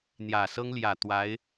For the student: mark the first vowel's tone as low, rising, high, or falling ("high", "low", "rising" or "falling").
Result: low